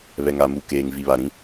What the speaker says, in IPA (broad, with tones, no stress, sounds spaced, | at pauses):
β ɛ˨ ŋ a˨ m u˨ k eː˨ ŋ v i˨ β a˨ ɾ ĩ˦